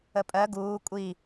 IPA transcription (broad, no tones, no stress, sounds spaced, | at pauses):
ə pʼ ɜ ɡ uː kʷʼ i